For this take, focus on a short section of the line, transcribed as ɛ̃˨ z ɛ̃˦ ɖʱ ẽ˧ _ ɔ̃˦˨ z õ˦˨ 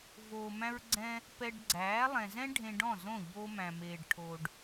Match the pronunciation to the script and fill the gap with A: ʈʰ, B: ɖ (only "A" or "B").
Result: B